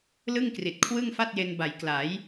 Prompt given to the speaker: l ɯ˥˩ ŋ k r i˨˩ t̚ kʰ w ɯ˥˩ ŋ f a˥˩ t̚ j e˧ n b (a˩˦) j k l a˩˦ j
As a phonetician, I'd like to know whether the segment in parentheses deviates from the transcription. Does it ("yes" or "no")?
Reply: no